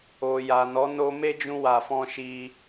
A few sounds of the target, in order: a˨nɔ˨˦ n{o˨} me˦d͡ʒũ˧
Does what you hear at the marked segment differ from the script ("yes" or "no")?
yes